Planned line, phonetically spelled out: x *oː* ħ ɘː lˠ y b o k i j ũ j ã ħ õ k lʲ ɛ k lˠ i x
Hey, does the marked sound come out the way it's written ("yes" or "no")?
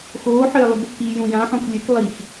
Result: yes